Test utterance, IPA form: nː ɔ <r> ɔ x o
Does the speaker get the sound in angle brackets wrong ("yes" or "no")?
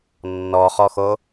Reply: yes